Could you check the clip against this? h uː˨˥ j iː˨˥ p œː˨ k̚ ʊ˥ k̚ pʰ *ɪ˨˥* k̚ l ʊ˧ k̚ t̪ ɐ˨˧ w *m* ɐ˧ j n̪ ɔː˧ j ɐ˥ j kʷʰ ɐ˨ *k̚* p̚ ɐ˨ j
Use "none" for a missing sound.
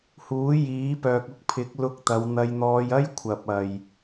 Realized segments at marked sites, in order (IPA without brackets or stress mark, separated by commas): ɪ˨˥, n̪, none